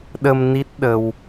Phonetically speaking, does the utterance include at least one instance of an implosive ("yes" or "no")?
yes